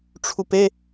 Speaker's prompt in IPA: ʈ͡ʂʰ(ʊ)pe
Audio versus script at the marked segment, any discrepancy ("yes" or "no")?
yes